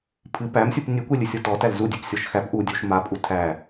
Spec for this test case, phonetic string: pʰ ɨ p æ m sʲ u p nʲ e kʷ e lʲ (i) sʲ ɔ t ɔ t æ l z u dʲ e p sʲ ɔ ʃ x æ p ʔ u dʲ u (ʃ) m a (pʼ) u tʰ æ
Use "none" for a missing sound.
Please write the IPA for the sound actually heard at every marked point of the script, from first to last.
ɨ, ʃ, pʼ

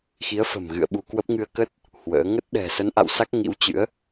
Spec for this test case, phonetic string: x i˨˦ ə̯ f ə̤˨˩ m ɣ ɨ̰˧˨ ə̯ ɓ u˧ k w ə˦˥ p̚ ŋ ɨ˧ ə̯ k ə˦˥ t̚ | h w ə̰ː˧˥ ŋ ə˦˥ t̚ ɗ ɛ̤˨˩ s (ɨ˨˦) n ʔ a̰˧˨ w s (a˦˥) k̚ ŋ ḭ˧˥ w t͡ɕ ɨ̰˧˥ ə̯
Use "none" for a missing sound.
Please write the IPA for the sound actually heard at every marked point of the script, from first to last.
ə˨˦, a˦˥

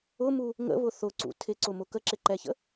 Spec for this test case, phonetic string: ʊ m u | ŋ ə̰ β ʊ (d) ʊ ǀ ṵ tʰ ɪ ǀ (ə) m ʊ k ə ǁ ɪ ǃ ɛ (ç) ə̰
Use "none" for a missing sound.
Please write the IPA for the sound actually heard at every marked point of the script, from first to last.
θ, ʊ, ç

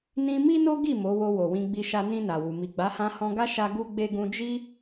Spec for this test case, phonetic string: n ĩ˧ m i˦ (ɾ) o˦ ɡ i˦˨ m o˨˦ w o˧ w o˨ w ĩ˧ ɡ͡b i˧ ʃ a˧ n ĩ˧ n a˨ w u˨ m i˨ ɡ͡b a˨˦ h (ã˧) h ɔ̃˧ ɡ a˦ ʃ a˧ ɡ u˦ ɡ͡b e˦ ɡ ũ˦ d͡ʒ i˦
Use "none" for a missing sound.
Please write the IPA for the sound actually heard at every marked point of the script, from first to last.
n, ã˧

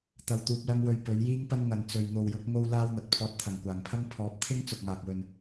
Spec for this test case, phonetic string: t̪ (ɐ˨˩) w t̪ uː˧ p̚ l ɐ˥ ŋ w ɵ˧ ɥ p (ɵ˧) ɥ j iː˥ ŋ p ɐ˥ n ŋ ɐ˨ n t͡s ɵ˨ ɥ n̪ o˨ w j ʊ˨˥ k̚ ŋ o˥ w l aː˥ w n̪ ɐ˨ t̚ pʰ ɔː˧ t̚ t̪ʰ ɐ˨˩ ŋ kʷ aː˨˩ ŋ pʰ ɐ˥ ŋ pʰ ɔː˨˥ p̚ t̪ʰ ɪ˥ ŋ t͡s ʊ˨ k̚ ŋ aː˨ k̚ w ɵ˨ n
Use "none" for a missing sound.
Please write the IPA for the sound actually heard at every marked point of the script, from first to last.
ɐ˧, ɵ˨˥

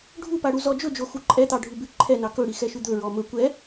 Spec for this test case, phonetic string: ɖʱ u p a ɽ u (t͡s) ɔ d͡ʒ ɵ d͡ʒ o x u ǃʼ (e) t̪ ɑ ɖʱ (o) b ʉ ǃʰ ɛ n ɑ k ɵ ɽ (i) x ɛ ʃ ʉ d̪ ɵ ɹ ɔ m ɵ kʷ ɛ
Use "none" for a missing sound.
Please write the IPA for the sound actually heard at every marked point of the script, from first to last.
z, ɛ, u, i

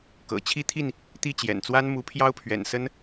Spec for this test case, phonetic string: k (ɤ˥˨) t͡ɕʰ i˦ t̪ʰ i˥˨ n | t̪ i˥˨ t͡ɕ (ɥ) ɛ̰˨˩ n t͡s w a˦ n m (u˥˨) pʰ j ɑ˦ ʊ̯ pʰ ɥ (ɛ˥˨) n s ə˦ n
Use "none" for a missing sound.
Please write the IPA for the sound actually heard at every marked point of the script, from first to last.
ɤ̰˨˩, j, u˨˦, ɛ̰˨˩

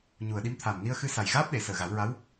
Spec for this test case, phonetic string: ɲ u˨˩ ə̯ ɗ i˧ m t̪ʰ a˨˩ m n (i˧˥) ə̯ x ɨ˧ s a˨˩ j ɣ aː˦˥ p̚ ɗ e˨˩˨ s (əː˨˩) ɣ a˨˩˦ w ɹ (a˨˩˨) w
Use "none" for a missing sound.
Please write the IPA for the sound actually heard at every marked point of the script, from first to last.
i˧, əː˨˩, a˧˥

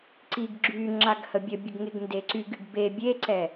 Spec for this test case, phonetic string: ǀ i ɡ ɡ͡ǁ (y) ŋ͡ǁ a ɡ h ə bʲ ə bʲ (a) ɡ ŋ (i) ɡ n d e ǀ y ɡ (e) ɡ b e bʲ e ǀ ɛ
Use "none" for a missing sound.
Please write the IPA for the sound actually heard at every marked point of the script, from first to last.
y, ə, e, y

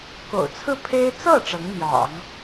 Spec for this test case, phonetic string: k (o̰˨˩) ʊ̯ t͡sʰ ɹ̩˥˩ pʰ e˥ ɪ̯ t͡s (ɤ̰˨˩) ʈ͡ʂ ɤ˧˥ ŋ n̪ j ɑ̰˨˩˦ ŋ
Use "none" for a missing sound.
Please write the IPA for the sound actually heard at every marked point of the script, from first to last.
o̰˨˩, ɤ˥˩

